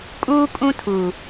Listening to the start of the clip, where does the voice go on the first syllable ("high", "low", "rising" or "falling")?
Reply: high